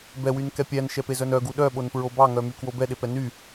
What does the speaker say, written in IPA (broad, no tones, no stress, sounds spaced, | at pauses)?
b ɛ w y n k ɛ pʲ æ n ʃ ɛ p e z œ n œ ɡ u ɗ œ ɓ o n p ɹ o b ɑ ŋ œ m y k w o b ɛ ɗ e p ɛ n y